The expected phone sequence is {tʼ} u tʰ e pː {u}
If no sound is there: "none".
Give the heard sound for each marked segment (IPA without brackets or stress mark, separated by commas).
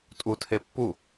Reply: tʼ, u